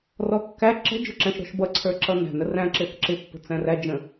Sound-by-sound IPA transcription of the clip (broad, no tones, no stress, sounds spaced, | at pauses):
r ɔ kː æ ǁ ə̤ d͡ʒ ʊ ǁ æ̃ ʃ ɾ ɔ̤ ʃ b ʌ ǀʰ ə˞ ǁ ʌ n æ̤ n ə r æ̃ ǁ ɪ θ ǁ ɪ pː ə̤ t͡s æ̃ r æ d͡ʒ ə̃